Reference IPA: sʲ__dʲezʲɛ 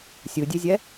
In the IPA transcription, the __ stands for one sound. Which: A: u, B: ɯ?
B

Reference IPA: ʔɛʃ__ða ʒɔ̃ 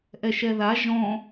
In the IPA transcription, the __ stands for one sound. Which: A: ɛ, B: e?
A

